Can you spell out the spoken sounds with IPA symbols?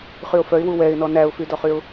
χ y ʊ̯ f œ ɪ̯ w u w ɛ ɪ̯ n ɔ n æ ʊ̯ f y d ɔ χ y ʊ̯

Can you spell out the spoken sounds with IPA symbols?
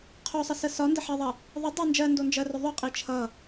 qʰ o sˤ ə s ə s ɒ n d ə ħ ɜ ðˤ ɜ | ðˤ ə dˤ ɜ n d͡ʒ ɜ n d o n d͡ʒ ɜ r ɵ ðˤ ɵ qʼ i t͡ʃʰ ʌ

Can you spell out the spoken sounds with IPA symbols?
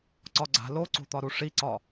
ǀ ɒ ɡ͡ǀ a̤ l o ǀ o̤ t̪ ɒ ɾ u ʂ i ǀ ɒ

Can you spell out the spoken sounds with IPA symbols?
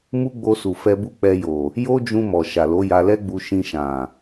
m u˦ ɡ͡b o˧ s u˨ f ɛ˧ b u˦ k͡p ɛ˧ j o˨ | j o˦ d͡ʒ ũ˧ m ɔ˨ ʃ a˨ l o˨˦ j a˧ l ɛ˦ ɡ͡b u˧ ʃ ĩ˧ ʃ ã˨

